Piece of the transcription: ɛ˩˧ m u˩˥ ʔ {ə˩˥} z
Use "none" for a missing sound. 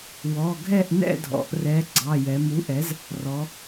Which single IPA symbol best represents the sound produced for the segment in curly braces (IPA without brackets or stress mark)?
ɛ˩˥